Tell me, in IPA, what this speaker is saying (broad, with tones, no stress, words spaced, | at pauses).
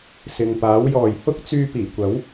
sɪ˨ŋpaː˨˥wjɔː˨j hʊ˥k̚t͡syː˧piː˨˩kʷɐ˨˥w